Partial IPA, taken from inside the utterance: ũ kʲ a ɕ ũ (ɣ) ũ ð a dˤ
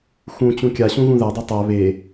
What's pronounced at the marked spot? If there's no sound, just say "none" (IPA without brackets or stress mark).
ɣ